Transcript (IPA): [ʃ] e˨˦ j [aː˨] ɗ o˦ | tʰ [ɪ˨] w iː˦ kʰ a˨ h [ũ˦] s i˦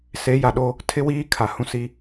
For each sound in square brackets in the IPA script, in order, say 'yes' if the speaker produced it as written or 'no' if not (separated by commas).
no, no, no, yes